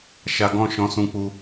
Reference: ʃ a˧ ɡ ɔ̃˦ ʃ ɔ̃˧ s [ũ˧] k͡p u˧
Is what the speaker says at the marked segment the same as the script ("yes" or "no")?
yes